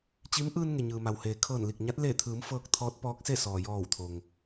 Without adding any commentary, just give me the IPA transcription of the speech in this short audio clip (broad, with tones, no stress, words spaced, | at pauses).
t͡ɕi˧˥m ʔɯː˧n ŋe˩ɲɯː˩ma˩w heː˩kʰɤː˧˩nli˧˩k̚ ɲa˧˥t̚ leː˧˩t̪ʰɯː˩˧m fɤː˧k̚ t̪ʰɔː˧˥t̚pɔː˧˥k̚se˥˨ sɔː˩jɔː˧˩wt̪ʰo˩ŋ